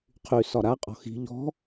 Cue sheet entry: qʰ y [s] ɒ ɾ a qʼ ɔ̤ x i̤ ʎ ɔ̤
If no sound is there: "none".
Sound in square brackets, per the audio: s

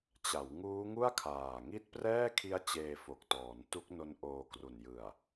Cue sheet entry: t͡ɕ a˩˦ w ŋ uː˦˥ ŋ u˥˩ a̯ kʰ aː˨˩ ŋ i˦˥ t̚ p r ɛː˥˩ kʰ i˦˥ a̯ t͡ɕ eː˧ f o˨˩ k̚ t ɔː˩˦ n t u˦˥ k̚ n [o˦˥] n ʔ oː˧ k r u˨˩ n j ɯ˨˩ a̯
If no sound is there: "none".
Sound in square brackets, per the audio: o˦˥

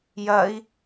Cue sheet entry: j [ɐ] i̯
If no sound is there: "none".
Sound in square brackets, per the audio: ɐ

